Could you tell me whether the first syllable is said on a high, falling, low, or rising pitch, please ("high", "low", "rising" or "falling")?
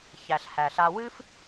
low